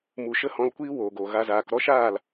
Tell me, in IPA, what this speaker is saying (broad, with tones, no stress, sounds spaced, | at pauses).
m u˨ ʃ ə˦ h ɔ̃˧ l kʷ iː˦ w oː˨ ɡ o˨ ɣ a˧ z aː˨ k ɾ ɔ˦ ʃ aː˦˨ l